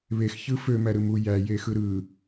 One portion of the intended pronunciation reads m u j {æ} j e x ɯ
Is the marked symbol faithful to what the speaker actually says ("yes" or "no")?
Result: yes